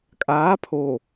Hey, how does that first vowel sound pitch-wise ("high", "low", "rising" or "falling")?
rising